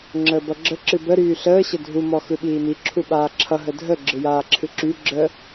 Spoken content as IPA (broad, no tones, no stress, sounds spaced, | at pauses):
ŋ͡ǁ əː b ʌ ɡ͡ǁ ə ǁ ɨ b ə ɾ yː ɬ əː ɕ ə dʱ u m ɔ x ɯ ɓ iː m i ǁʰ u ɓ aː ǁʰ ʌ ɦ ə dʱ ə ɡ͡ǁ ɯ j aː ǁʰ ɨ ǁ y ɡ͡ǁ ə